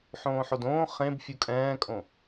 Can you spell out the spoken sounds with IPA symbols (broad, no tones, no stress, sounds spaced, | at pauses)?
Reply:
ħ õː ħ o d õː χ ẽ b fʲ u kʼ ɛ̃ː kʼ õ